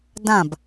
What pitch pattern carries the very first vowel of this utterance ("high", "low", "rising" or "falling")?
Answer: falling